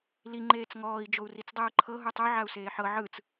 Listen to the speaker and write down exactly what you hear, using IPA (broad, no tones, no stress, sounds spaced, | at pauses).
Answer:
l i ŋ͡ǃ eː t͡s ŋ ɔː i̯ d͡ʒ o u̯ r i t͡s dˤ ɯː ǃʰ ɤ ɦ u tˤ o ʕ a u̯ s eː ħ ɤ ʕ ɯ t͡s